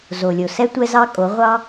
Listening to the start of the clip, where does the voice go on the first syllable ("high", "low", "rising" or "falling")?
low